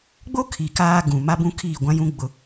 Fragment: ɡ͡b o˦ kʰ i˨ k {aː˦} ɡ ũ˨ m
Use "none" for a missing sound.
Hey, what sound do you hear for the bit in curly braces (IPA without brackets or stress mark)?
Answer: aː˦